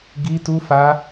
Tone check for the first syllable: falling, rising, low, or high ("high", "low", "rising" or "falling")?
high